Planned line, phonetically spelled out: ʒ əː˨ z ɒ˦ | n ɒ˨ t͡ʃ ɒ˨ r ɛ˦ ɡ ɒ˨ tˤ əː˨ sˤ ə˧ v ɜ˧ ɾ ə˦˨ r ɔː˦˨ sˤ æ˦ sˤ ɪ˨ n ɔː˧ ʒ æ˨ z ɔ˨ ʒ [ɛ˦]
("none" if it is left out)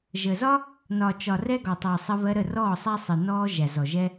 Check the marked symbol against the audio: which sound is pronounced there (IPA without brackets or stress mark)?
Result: ɛ˦